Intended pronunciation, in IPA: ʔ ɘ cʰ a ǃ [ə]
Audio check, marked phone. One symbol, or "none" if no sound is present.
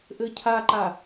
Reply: a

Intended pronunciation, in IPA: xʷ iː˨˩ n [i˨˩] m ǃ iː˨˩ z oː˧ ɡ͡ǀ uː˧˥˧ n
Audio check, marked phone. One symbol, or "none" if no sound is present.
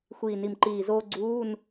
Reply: i˨˩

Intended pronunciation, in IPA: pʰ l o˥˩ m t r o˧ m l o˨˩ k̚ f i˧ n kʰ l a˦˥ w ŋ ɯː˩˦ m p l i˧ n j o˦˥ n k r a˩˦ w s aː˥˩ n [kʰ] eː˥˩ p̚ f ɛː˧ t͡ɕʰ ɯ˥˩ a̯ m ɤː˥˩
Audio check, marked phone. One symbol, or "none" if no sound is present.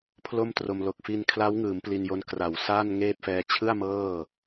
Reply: ŋ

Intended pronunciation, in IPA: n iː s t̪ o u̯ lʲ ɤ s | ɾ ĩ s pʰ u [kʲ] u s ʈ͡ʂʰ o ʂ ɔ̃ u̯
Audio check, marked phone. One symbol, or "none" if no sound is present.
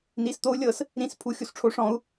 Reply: xʲ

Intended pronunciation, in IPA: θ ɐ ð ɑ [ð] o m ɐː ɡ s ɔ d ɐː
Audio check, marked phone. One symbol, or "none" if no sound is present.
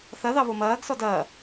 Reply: β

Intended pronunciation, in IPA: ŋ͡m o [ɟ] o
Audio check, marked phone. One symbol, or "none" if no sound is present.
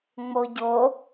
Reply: ɟ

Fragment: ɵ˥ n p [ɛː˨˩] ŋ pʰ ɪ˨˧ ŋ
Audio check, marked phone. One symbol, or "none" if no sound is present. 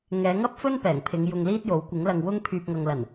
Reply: ɛː˨˩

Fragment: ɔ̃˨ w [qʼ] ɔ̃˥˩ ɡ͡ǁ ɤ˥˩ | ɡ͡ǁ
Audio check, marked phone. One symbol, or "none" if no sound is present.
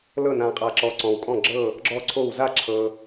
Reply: kʼ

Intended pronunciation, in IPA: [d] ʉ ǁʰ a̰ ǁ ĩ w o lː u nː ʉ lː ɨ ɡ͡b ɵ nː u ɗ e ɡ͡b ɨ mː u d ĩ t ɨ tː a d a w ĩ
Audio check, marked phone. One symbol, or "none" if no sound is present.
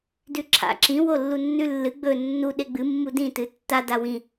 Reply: d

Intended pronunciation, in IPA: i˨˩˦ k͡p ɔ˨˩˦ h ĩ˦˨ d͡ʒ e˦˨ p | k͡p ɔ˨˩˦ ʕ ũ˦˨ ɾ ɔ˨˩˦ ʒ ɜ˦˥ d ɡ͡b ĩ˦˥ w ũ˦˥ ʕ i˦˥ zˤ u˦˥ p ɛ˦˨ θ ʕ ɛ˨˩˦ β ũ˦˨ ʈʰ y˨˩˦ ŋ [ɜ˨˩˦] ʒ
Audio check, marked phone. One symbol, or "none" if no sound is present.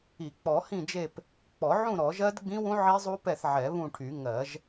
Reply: ɜ˨˩˦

